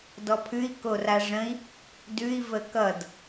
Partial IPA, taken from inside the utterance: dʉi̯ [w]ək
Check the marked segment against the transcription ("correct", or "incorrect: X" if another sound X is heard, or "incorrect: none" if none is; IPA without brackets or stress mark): incorrect: v